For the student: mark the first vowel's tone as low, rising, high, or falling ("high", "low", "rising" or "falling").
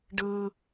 high